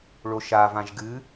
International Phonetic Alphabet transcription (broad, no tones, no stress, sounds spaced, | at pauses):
ɭ o ʃ a v ã ʒ ɡ ɨ